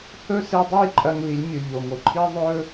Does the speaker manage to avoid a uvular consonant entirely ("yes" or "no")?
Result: yes